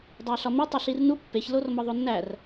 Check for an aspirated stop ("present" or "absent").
absent